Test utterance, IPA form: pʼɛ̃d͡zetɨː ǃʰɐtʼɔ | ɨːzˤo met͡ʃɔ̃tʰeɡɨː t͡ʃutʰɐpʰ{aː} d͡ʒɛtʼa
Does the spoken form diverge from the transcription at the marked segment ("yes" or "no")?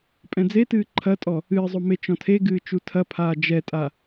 no